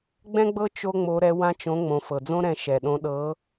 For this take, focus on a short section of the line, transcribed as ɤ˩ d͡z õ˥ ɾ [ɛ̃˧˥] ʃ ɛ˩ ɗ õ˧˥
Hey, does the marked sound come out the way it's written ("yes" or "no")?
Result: no